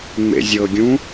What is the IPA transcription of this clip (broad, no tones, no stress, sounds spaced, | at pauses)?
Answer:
ŋ͡m ḛ zʲ ɤ ɡʲ ũ